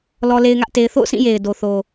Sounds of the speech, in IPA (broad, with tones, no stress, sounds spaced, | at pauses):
l ɔ˦ l e˦ ɪ̯ ŋ ä˦ ʔ t e˦ ɪ̯ θ o̰˦˨ ʊ̯ s ĩ˦˨ j e˨ ɪ̯ d o˨ θ o˨